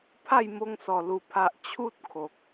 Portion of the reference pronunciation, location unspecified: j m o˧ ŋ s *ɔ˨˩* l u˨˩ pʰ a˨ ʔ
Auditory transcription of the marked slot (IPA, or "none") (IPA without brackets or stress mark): ɔ˨˩